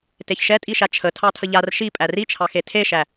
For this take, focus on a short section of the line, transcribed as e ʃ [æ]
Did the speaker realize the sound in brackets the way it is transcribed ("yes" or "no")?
yes